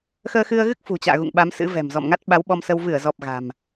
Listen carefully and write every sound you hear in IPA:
x əː˧ x ɨ˧ ə̯ ɣ ɨ˦˥ k̚ f ṳ˨˩ t͡ɕ a̰ː˧˨ ɣ ṵ˧˨ ŋ ɓ a˨˦ m s ɨ̰˧˥ v ɛ̤˨˩ m z ɔ̰˧˨ m ŋ a˦˥ t̚ ɓ a˨˦ w ɓ ɔ˧ m s ə˧ w v ɨ˧˩ ə̯ z ɔ˨˩ p̚ ɣ a̤˨˩ m

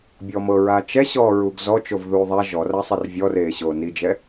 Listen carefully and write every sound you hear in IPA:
bʲ ɔ m ɤ ɹ aː t͡ʃ ɛ ɕ ɔː ɹ u ɡ z ɔ t͡ʃ o v ð uː ðˤ a ʒ ɔ r a sˤ ɛ r vʲ ɔ r eː ɕ oː n i d͡ʒ ɛ

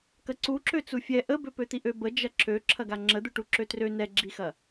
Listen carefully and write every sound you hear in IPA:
k ɐ ǀ u ǁ ø t͡s u fʲ ɛ ʔ ə b ø p ø t̪ i ʔ ø b ə d͡ʒ ɐ ǁ ø ǁʰ ɐ ɡ a ŋ͡ǁ ə d̪ u ʈ u ǁ ø t r ø n ɛ ɡ͡ǁ i x ɐ

